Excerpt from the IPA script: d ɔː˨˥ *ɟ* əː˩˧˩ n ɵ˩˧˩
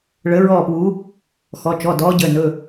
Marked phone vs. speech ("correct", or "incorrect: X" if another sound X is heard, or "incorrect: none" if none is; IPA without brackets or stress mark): correct